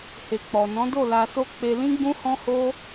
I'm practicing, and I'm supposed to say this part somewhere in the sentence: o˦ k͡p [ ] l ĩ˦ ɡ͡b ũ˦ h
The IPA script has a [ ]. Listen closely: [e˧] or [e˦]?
e˧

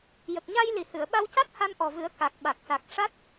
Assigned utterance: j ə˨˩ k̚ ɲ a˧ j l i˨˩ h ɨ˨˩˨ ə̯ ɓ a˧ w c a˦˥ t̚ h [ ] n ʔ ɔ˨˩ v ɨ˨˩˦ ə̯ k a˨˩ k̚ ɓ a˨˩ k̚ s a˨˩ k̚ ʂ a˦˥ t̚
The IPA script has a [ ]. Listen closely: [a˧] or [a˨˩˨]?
a˧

